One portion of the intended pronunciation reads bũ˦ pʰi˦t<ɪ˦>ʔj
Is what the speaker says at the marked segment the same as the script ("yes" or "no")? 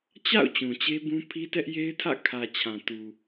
no